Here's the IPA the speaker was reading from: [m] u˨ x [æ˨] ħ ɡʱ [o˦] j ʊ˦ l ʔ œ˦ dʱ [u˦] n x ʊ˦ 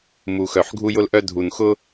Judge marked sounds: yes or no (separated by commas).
yes, no, no, no